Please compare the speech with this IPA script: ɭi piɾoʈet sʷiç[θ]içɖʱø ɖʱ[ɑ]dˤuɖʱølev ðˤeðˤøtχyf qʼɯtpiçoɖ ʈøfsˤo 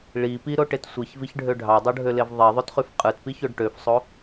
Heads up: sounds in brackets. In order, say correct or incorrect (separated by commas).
incorrect, correct